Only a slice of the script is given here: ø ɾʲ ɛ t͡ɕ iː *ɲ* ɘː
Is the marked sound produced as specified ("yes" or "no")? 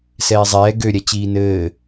no